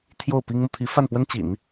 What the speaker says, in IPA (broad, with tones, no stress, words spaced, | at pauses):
t̪ʰjo˥˩ʊ̯pi˥ŋmu˨ t̪ʰi˧˥fa˥˩npwə˥n t͡ɕḭ˨˩˦n